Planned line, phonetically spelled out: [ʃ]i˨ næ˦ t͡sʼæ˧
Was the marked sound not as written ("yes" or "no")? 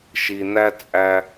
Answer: no